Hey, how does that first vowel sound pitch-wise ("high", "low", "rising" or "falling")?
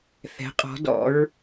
rising